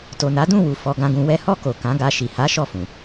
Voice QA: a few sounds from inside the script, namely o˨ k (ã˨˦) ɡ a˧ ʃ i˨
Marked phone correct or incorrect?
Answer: correct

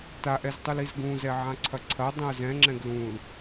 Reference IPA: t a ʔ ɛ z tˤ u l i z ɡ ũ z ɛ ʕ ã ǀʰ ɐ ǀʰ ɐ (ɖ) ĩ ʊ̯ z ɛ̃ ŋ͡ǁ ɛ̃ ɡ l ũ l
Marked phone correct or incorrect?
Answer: incorrect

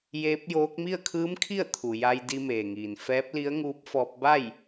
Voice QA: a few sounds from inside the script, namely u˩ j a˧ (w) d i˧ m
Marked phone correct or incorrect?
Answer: incorrect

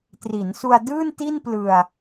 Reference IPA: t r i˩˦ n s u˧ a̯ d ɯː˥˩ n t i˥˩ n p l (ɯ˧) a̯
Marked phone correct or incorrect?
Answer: correct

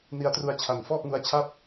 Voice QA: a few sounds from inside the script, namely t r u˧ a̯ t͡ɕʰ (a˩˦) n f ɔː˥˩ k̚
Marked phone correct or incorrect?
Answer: correct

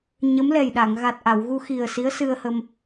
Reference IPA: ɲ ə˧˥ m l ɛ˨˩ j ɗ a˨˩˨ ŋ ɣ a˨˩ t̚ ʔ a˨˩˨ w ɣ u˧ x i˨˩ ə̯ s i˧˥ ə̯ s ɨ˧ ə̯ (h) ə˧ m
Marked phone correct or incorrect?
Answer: correct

